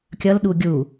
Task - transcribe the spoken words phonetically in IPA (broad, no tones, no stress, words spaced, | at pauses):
kʲʌlɗu ɡʲu